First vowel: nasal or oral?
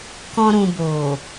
nasal